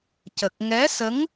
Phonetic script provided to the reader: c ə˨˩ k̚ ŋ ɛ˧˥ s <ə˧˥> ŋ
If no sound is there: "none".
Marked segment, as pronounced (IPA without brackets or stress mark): ə˧˥